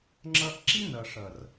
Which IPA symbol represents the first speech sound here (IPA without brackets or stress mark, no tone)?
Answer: ŋ͡ǁ